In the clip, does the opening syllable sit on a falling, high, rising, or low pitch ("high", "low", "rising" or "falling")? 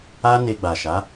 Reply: high